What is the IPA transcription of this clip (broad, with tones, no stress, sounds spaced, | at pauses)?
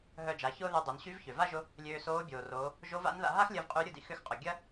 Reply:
ɦ œ˧ d͡ʒ a˩˧ ç ʊː˥ ð y˧ dˤ ø˩˧ n ɕ y˧˥ v ç ø˩ v a˥ ʒ ʊ˧˥ | lʲ øː˧ s oː˧˥ bʲ oː˩ r oː˩˧ | ʒ o˧˥ v a̰˧˥ n ð a̰˧ ɦ a˥ x lʲ ɐ˧ v qʼ y˧˥ ɾʲ ʊ˧ d ḭ˩ x ʏ˧˥ x qʼ ʊ˩ ɡʲ ɐ˥